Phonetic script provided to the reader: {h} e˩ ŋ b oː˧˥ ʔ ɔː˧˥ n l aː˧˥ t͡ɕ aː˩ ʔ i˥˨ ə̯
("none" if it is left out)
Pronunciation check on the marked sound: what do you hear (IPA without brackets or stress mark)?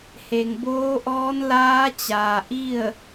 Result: h